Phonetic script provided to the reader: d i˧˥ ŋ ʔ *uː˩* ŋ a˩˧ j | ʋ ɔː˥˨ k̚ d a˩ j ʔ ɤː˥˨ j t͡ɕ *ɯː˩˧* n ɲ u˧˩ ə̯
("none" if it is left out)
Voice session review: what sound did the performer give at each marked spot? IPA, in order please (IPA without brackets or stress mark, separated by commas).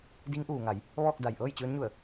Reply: uː˩, ɯː˧˥